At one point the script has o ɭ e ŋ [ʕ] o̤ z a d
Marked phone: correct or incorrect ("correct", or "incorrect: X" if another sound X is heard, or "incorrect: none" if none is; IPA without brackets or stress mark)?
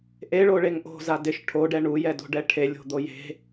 incorrect: ʔ